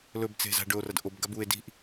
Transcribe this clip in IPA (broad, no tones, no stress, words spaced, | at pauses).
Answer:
lɵb t͡se̤za̤ɖɵo̯ rɐdʔob ɡabue̯ di̤ʔ